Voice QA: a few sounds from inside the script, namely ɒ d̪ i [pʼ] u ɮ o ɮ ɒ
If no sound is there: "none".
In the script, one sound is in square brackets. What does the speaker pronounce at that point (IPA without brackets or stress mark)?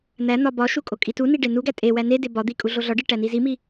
kʼ